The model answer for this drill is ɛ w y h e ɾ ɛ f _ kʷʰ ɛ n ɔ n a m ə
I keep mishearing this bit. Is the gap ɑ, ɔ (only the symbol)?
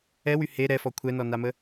ɔ